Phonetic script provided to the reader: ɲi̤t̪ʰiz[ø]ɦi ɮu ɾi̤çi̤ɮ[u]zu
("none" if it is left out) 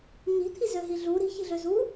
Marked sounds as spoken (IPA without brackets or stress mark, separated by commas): ø, ø